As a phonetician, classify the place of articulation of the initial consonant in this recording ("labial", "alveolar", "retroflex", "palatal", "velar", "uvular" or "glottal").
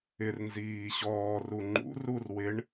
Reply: alveolar